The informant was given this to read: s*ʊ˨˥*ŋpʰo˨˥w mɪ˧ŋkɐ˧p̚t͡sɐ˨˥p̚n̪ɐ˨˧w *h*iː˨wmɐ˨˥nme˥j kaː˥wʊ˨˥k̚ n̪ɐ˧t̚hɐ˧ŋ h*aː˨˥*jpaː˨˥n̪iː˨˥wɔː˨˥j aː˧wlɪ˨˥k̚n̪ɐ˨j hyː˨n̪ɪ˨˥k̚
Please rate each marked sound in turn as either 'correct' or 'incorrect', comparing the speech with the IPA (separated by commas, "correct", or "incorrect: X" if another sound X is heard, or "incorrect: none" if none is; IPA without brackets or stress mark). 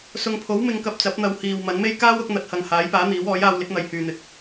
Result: incorrect: ʊ˨, correct, correct